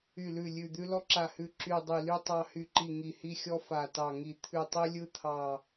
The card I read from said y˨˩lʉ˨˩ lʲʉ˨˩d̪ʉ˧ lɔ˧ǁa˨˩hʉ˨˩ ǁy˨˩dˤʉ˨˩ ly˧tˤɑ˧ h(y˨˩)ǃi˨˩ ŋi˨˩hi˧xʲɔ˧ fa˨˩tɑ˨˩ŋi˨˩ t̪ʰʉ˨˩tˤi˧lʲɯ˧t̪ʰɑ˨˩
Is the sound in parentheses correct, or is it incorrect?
correct